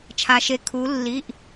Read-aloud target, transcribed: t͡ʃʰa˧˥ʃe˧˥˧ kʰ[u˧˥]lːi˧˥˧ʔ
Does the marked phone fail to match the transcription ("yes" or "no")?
no